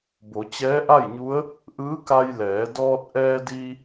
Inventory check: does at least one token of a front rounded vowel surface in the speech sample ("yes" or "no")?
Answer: no